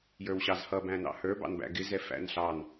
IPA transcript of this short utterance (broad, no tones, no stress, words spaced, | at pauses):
jə˞wɕɑzhʌ bæ̃nɑ̰hə˞ bɑ̰nbæ̰ɡɪ zɛfæ̰nɬɑn